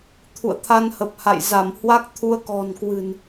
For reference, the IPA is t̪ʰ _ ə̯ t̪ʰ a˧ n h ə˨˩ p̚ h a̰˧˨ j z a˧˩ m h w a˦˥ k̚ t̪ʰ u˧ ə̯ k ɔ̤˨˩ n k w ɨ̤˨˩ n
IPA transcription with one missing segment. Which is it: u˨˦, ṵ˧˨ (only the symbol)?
ṵ˧˨